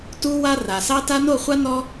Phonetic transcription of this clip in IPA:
tu˦wa˦ ra˨sɑ˦ ta˦ no˦˨χʷa˦ nɔ˦

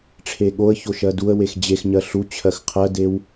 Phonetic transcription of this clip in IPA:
ʈ͡ʂʰeɠoə̯ço ʃɜduə̯wex d͡ʑexɲɜ ɬu t͡ɕʰɜxqʰɜdew

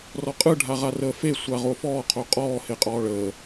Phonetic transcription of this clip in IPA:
rɔqʼɯ ɖʱaʁarəːfe sʷaʁofɔː qʰoqʼɔː heqʼɔːɭəː

